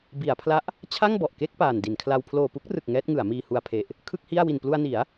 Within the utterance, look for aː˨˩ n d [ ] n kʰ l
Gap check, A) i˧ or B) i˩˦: B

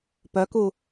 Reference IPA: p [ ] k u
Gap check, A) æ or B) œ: B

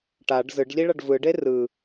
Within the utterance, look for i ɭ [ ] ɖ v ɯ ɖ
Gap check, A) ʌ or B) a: A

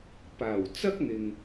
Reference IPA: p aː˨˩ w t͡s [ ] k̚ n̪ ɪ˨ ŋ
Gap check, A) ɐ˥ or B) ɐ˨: A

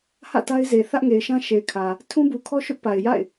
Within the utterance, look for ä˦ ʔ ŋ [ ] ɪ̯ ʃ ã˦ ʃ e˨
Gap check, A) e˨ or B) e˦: A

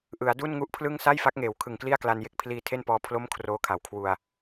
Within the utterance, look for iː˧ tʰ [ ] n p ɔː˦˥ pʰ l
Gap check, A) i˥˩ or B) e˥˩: B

